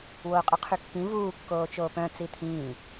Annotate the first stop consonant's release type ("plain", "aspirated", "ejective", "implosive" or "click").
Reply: ejective